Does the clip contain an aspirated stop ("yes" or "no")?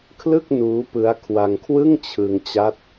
yes